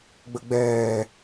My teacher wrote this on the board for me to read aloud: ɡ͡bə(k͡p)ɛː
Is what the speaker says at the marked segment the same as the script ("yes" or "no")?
no